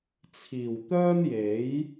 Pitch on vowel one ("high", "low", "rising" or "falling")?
low